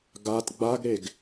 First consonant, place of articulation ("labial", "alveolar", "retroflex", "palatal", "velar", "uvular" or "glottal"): velar